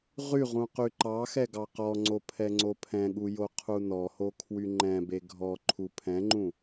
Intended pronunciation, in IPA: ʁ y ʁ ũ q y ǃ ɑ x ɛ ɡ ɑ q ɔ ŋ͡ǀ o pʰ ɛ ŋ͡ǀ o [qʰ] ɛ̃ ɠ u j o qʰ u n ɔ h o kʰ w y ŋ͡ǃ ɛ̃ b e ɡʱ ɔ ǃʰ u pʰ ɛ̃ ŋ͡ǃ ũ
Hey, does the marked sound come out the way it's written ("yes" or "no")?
no